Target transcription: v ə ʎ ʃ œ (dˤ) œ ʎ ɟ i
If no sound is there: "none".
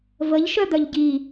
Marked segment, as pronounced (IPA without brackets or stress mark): d̪